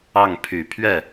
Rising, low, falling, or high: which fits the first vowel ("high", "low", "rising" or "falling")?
falling